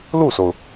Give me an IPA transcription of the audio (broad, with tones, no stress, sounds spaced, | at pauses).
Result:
l u˥˩ s o˩ ʊ̯